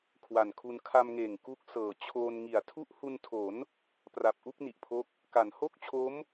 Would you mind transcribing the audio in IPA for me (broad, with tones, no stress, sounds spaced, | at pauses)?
kʰ w a˨˩ n kʰ u˧ n kʰ a˧ m ŋ eː˨˩ ŋ k u˦˥ k̚ s ɤː˨˩ t͡ɕʰ oː˧ n ŋ i˨˩ a̯ tʰ u˦˥ ʔ h u˧ n tʰ o˩˦ n | p r a˨˩ p̚ ʔ u˥˩ k̚ n i˨˩ ʔ pʰ o˦˥ k̚ | k a˩˦ n h o˥˩ k̚ t͡ɕʰ o˦˥ m